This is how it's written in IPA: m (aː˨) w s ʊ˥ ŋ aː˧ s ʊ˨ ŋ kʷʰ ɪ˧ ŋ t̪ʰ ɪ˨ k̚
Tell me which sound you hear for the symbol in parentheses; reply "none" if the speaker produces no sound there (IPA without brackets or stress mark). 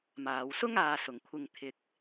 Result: aː˨